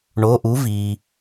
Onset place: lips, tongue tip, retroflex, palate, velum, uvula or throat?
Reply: retroflex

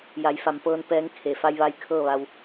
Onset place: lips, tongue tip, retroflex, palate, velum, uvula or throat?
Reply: palate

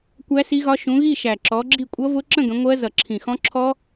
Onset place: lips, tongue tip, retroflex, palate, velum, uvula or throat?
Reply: velum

